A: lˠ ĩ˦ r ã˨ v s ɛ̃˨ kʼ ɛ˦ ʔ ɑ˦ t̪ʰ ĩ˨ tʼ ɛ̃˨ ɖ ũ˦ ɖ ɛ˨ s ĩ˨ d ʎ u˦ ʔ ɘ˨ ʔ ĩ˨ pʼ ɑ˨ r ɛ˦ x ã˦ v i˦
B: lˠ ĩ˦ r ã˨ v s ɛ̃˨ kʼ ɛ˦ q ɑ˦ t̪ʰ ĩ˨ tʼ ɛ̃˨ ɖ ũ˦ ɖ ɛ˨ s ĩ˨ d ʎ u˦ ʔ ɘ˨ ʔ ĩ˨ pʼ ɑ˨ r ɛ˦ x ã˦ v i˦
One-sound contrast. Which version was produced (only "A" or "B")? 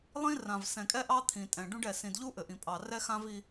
A